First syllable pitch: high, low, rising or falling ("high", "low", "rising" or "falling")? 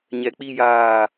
low